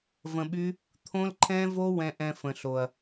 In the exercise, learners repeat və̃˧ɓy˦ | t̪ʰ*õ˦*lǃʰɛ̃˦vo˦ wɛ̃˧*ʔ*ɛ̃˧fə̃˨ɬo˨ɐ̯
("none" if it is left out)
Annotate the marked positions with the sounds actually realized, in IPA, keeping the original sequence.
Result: õ˦, ʔ

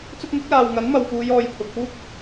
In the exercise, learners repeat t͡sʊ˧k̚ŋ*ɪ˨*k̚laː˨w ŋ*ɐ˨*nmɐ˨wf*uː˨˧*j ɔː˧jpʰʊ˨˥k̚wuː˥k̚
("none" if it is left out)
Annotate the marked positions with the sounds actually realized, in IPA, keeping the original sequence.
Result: ɪ˨˥, ɐ˨˥, uː˨˧

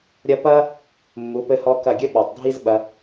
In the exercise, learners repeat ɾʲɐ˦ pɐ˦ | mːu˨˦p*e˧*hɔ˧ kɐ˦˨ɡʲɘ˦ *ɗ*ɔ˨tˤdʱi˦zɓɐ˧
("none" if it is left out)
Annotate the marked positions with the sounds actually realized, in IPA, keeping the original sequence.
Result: ɘ˧, ɓ

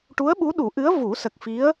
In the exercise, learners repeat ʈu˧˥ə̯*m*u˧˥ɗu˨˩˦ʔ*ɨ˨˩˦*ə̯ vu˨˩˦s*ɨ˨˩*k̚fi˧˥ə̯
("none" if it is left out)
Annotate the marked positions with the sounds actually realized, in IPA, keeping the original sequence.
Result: ɓ, ɨ˧˥, ə˨˩

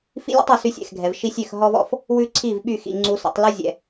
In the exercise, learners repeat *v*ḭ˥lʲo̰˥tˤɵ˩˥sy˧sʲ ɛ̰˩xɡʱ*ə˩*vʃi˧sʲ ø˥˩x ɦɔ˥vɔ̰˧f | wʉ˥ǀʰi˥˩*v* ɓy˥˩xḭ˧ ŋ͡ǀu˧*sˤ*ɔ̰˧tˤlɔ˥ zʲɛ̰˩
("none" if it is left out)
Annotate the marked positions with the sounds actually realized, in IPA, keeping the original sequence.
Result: f, ɛ˩, v, s

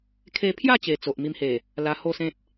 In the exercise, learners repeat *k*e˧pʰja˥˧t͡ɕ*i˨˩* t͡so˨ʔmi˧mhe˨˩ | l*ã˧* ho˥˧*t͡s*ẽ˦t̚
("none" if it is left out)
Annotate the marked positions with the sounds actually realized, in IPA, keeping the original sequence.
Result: kʰ, e˨˩, a˧, s

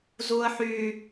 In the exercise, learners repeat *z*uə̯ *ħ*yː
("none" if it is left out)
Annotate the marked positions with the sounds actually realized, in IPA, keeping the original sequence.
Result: z, ħ

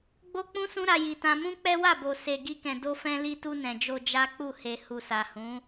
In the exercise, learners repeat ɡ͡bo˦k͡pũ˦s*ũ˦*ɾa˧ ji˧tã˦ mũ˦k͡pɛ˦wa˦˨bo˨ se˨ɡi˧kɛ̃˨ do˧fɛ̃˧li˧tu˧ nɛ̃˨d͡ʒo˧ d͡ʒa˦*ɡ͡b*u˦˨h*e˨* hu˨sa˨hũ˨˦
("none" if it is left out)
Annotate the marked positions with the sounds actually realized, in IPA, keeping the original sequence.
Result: ũ˦, k͡p, e˨

